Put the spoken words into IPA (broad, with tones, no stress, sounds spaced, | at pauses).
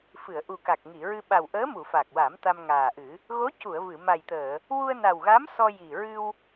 f ɨ˨˩˨ ə̯ ʔ u˨˩ k a˨˩ k̚ ŋ i˨˩˨ ɹ ɨ˧ ɓ a˨˩ w ʔ əː˧˥ m u˨˩˨ f a˨˩ k̚ w a˨˩˦ m t̪ a˧ m ŋ aː˨˩ ʔ ɨ˨˩˦ | ɣ o˧˥ c u˨˩˨ ə̯ v ɨ˨˩˨ m a˨˩ j t̪ əː˨˩˨ | w u˧ ə̯ n a˨˩ w ɣ a˧˥ m s ɔ˧ j i˨˩ ɹ ɨ˧ w